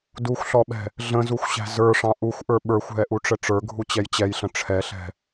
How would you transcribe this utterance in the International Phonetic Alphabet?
duxʷɬɔɓɛ̤ | ɮə̃zuxʷɕæ̤ zə˞ʂɑ̃ ʔuxʷʔə˞ ɓə˞xʷɦɛʔuʈ͡ʂə ʈ͡ʂə˞ɡʱut͡ɕɛj t͡ɕɛjɬə̃ ʈ͡ʂʰɛɬɛ̤

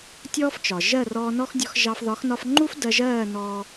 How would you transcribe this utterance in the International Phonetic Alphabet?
tʲɔː˥ft͡ʃɒ˩ ʒɜ˥˩rɔː˧ nɔ˥xdʲɔ˧xʒɑ˧f ðɒ˩˥xnɒ˧fŋ͡ǃu˥f dɜ˧ʒɜː˥˩ nɔː˧

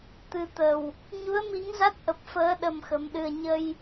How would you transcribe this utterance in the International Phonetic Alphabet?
t̪ɨ˨˩t̪ə˨˩w | ɲu˨˦ə̯mi˨˦ŋza˦˥t̚ ʔə˨˩p̚fəː˨˦ ɗə˧mxə˨˦mɗɨ˧ə̯ ɲə˧j

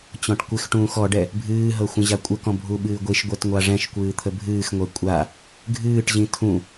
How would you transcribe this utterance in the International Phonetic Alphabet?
t͡ɕɔ̃ʈkʷɪxʈũːx ɔɖɛ | bʱɨːɦɤ xʷə̃ʑakʷʼəkɔ̃ bʱuɓɨːɡʷiʃɡʷɛt ŋʷaʐɛ̃ʃkʷɨː t̪ʰəbʱɨːxŋʷɛ kʷʼa | ɡʱɨːʈʑĩ tʰũ

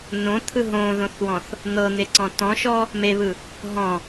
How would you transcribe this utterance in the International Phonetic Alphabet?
nõt̪ʰɯ ɦõðõθwɔ̃θ | n̪ɤn̪eǀɔ̃ tɔ̃ʃɔ | meβɯ | ɦɔ̃

